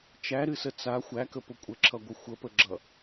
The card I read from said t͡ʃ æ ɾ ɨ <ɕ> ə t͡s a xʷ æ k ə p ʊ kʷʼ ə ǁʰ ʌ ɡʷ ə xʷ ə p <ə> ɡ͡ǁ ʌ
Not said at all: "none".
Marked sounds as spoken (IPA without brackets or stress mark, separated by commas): s, ə